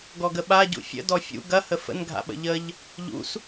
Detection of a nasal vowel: absent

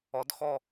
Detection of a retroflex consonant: absent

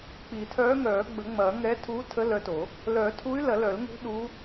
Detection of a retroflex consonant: absent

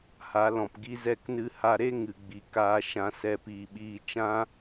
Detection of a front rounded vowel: absent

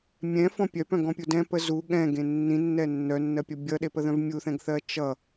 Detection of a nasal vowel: present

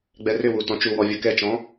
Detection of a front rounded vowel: present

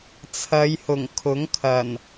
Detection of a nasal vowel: absent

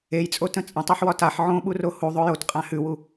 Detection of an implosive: present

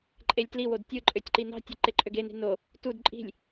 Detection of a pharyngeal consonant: absent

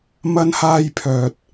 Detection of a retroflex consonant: absent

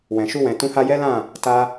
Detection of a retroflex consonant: absent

